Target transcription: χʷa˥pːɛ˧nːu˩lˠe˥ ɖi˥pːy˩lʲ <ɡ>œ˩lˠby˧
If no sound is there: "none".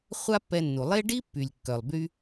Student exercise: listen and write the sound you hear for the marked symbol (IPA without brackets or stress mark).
kː